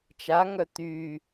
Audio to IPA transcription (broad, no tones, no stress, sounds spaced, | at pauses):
t͡ʃ a ŋ œ t̪ y